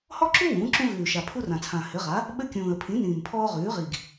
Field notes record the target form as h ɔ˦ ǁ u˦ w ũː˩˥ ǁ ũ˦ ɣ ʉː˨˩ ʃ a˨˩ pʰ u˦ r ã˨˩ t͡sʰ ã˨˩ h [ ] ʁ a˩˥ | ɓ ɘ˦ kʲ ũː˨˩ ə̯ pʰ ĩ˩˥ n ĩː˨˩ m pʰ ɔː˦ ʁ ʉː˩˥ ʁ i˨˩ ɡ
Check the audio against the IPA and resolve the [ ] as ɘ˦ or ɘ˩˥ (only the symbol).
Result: ɘ˩˥